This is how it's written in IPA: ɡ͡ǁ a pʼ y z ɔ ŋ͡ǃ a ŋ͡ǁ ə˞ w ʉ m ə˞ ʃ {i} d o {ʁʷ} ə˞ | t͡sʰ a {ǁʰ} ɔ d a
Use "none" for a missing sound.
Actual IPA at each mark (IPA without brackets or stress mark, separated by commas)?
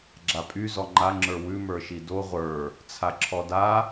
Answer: i, ʁʷ, ǁʰ